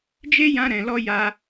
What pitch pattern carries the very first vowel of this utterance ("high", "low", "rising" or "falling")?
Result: high